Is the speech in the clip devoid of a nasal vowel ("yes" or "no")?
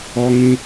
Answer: no